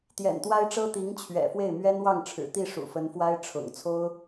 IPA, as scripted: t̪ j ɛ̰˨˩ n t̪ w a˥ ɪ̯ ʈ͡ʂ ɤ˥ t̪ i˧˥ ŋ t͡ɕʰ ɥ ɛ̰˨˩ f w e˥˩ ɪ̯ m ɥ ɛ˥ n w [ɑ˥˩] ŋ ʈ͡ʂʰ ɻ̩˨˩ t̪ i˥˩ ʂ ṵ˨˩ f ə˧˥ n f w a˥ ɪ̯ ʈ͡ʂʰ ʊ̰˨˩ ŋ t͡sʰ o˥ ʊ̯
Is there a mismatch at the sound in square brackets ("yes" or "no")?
no